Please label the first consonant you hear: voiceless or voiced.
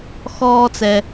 voiceless